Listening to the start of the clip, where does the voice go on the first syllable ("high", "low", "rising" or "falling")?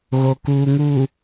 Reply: low